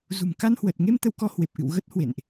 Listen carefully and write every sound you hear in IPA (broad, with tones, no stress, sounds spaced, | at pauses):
z ṳ˨˩ m k a˧ n h w ə˨˩ t̚ ŋ e˧ m t̪ ə˧ w k ɔ˧ h w e˨˩ p̚ ʔ ɨ̰˧˨ w ɣ ə˦˥ t̚ h w ḛ˧˨ n ʔ